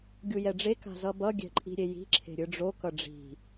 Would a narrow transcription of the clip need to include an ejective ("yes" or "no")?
yes